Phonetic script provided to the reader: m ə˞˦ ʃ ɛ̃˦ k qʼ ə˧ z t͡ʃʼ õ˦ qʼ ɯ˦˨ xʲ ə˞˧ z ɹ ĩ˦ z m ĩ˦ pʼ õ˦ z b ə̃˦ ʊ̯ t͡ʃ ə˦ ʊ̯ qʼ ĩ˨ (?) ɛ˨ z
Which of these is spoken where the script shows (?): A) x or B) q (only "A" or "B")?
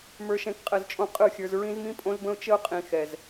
A